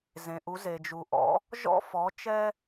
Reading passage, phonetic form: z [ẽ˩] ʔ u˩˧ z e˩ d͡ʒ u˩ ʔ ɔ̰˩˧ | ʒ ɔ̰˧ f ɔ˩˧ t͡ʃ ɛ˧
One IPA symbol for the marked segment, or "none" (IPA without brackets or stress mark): ẽ˩